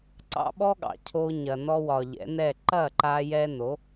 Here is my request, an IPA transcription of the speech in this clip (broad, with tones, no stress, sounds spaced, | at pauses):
ǀ ɑ̰˦ ɓ ɔ˦ ɠ ɑ̰˨ cʰ o˧ ɲ ɐ˨ n ɔ˦ w ɒ˨ ʎ ɛ̰˨˦ n ɛ˦˨ ǃ ɐ˦˨ ǃ a˧ j ɛ˧ n o˨˦